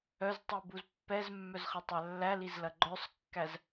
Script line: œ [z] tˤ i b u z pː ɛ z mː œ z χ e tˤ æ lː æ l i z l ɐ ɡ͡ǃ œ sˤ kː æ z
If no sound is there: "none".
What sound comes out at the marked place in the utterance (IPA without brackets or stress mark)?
z